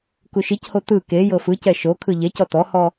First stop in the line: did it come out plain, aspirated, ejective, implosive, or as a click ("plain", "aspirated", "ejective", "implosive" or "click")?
plain